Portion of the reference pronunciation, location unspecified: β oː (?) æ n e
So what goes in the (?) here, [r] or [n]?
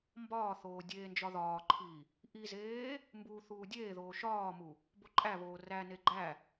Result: r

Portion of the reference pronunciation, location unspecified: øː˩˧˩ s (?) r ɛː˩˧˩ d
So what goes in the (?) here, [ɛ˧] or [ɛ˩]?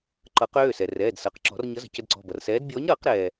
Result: ɛ˩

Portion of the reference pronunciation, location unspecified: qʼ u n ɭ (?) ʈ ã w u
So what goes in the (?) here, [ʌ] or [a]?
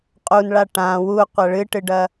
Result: a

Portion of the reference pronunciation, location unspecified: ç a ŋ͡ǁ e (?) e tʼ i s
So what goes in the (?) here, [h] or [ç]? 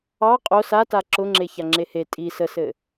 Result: h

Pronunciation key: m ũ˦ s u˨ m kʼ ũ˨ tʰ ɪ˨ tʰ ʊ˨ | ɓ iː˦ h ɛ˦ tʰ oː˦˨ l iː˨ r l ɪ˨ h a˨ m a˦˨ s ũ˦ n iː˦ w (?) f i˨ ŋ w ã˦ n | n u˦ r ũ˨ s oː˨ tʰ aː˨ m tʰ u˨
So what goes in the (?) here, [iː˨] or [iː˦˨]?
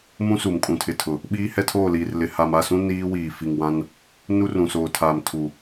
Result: iː˨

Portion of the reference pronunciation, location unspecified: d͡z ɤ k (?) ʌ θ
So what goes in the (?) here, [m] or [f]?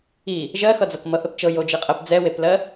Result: m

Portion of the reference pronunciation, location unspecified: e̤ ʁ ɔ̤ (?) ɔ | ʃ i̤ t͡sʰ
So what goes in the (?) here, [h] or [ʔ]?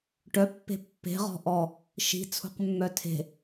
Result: ʔ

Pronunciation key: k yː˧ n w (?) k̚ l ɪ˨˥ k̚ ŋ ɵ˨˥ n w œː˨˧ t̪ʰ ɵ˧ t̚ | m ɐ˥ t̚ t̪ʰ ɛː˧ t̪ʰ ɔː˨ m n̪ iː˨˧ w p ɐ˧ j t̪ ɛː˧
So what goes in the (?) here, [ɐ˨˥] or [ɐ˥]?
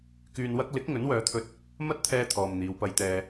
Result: ɐ˥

